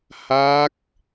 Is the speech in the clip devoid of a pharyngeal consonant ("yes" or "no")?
yes